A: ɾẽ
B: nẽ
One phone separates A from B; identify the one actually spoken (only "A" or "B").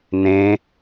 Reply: B